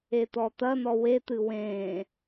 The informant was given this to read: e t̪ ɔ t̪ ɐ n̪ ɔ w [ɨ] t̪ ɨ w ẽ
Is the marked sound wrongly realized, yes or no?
yes